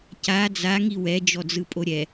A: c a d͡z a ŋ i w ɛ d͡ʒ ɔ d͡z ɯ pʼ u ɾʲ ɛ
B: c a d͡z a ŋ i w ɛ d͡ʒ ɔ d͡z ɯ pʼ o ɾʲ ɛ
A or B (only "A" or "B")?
B